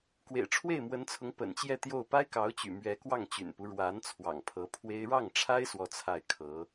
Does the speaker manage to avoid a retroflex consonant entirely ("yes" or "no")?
no